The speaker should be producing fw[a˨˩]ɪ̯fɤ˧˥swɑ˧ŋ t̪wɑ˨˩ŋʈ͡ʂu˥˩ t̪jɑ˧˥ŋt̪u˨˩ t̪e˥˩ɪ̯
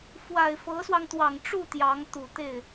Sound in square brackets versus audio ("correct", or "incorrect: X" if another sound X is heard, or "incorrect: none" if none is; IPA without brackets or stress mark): correct